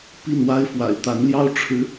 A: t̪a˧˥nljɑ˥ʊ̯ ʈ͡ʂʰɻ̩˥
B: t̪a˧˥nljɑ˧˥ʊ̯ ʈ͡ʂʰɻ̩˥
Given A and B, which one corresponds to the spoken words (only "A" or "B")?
A